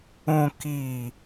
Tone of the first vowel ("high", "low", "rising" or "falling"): low